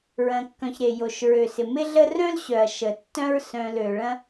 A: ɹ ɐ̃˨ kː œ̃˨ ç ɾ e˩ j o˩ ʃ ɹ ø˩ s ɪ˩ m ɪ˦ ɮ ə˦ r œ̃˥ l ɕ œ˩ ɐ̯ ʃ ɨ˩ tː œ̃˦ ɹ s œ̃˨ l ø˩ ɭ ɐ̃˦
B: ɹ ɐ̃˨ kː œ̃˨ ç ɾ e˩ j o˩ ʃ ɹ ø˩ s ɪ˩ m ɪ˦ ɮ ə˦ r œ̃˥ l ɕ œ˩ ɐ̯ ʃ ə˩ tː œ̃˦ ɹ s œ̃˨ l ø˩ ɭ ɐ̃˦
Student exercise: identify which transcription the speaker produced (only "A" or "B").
B